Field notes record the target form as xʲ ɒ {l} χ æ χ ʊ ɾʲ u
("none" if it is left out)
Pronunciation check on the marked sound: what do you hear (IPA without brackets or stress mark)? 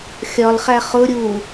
l